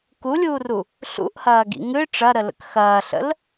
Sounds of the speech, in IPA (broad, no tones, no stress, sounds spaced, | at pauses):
k u lʲ uː r u | ɬ ṵ ʔ h ɐː ɡ ḭ ŋ ɨ ʈ͡ʂ ɐ ɾ ə l ə̰ k x ɐː ɬ ə̰ l